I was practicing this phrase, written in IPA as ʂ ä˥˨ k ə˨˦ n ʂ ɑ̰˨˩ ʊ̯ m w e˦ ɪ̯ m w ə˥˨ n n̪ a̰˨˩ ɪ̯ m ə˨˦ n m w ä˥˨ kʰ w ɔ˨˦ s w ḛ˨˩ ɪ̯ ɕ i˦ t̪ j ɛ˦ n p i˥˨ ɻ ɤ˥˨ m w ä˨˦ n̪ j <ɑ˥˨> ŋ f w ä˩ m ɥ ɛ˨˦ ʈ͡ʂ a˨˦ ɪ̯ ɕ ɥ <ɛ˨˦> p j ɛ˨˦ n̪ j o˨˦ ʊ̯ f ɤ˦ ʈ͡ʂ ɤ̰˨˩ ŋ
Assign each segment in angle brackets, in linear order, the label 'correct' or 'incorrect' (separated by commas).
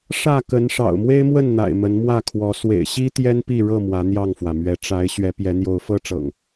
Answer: correct, correct